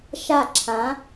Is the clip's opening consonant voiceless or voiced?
voiceless